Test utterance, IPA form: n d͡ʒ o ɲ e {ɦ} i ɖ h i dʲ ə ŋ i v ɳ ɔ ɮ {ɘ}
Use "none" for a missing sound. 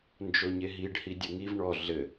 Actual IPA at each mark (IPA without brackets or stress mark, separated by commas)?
ɦ, ɘ